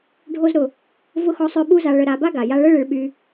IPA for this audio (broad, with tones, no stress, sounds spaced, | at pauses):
ɖʱ o˦ z ɾ ʊ˩ | v ʊ˥ x ɔ˦ sˤ ø˦ ɓ u˦ z a˨ ɭ ə˨ ɾ a˨ b a˥ ɡ a˩ j a˦ ɭ ə˥ ɭ ɪ˨ ɭ ɓ y˨